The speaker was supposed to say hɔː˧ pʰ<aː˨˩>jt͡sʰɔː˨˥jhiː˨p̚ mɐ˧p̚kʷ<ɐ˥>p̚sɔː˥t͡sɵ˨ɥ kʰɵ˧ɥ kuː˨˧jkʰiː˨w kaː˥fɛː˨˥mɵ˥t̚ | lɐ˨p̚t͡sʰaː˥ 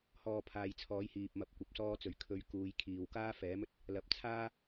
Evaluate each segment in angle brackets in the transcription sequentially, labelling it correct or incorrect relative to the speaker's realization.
incorrect: aː˨, incorrect: ɐ˧

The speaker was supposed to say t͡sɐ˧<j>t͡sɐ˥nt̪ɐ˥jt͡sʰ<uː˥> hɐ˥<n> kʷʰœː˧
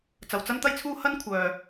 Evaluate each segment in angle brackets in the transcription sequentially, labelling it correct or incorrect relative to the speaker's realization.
incorrect: w, correct, correct

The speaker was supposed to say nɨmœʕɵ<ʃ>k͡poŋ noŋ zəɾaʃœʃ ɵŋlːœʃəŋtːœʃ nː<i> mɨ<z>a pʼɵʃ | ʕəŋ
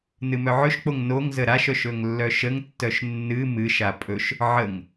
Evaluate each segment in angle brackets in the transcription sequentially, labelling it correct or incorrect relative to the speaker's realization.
correct, incorrect: ɨ, incorrect: ʃ

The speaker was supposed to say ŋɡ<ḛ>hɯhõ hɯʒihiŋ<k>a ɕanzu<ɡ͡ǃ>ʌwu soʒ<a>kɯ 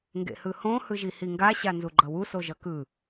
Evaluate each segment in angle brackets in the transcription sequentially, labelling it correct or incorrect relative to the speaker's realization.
correct, incorrect: ɡ, correct, incorrect: ʌ

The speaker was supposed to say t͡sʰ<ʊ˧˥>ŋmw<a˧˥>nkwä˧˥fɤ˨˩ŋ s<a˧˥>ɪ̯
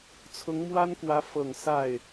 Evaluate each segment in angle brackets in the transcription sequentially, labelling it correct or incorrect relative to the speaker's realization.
correct, incorrect: a˥, incorrect: a˥˩

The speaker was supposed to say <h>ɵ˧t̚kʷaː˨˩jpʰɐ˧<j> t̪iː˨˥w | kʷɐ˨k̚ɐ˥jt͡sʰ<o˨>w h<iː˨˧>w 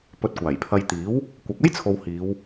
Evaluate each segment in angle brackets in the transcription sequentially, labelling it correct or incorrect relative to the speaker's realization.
incorrect: p, correct, correct, correct

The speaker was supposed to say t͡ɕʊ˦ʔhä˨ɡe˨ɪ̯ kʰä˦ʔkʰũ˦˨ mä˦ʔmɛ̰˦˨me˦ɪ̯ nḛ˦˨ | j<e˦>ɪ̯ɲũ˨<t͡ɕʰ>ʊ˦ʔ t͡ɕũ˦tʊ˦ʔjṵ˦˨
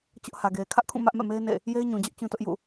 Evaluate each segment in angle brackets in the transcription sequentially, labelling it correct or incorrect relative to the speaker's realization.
correct, incorrect: d͡ʑ

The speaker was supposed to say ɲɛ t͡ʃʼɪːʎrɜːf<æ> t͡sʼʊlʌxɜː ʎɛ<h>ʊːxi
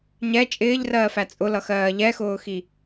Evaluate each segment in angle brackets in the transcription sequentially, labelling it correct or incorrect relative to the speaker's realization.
correct, incorrect: x

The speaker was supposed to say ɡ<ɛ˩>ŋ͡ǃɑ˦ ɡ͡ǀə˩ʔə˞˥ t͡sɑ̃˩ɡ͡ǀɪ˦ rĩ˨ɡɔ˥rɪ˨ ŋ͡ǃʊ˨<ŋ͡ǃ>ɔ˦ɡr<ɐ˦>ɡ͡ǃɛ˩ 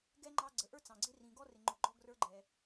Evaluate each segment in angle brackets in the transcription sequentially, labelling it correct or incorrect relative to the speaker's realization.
incorrect: ɛ˥, incorrect: ɡ͡ǃ, incorrect: ə˞˦

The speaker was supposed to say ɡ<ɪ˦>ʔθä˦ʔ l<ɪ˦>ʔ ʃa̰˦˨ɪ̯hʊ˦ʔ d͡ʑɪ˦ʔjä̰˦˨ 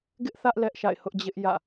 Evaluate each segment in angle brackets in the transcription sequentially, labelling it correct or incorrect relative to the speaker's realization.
correct, incorrect: ɛ˦

